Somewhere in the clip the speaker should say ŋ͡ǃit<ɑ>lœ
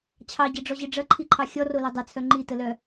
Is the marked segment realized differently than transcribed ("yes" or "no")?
yes